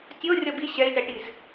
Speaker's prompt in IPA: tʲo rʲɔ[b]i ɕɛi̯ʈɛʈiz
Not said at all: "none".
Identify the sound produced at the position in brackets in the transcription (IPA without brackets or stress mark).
b